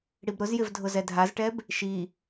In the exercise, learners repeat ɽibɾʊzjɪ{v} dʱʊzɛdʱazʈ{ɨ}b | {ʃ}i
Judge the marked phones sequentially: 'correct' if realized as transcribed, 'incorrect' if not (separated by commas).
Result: correct, incorrect, correct